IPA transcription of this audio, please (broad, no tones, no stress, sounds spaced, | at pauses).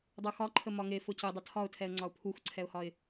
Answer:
dˤ u x ɒ ǃʰ ə m ɒ ŋ e f ʊ c ʊ dˤ ə tʰ ɒ ʊ̯ tʰ ɛ ə̯ ŋ͡ǀ ɒ ʊ̯ pʰ u x ǀʰ ɛ ʊ̯ h ɒ ɪ̯